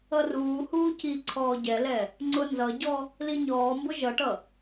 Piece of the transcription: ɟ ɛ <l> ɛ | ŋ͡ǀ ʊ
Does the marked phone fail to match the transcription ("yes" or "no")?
no